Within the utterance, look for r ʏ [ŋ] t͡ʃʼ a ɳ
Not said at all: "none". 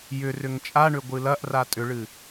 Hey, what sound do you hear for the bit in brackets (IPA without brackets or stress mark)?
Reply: ŋ